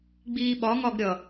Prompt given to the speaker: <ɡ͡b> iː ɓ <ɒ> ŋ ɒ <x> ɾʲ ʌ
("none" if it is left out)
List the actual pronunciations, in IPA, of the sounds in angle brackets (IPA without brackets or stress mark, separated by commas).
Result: ɡ͡b, ɒ, ɡ